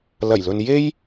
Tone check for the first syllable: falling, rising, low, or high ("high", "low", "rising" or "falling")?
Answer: low